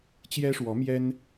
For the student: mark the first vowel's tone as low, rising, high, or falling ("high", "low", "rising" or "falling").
high